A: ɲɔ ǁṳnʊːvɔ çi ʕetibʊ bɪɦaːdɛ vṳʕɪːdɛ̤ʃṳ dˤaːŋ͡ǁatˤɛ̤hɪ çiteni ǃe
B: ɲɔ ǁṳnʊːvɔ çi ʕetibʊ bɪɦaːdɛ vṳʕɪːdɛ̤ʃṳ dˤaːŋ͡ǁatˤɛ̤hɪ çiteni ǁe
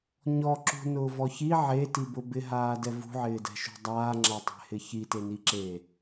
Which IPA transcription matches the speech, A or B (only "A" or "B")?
B